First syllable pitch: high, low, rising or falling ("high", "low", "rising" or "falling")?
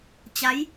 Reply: rising